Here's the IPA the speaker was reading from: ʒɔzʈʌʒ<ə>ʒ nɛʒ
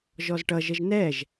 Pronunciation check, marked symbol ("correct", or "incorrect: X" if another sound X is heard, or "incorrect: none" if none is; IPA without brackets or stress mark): correct